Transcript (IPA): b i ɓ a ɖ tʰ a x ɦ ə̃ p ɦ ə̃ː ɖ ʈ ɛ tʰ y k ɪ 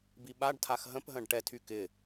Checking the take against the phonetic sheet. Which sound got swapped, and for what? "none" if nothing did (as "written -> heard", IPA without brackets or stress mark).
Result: none